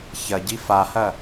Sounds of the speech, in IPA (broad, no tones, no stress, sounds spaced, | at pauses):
ç ɐ ɟ i f a h ɐ